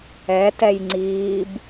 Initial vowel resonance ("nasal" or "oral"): oral